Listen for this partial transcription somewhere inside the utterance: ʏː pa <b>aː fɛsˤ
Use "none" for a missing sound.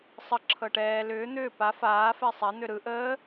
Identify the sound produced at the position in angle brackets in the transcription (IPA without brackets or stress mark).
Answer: f